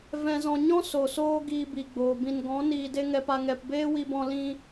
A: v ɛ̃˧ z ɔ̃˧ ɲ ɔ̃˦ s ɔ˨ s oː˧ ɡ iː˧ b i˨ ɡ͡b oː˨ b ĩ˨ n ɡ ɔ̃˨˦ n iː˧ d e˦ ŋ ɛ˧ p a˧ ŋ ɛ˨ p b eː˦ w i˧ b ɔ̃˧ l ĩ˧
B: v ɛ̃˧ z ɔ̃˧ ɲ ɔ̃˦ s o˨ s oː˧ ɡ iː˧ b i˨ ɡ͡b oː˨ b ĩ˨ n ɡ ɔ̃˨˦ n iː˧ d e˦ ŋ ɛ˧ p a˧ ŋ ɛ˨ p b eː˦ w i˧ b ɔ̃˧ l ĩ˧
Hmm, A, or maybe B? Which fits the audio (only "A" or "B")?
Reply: B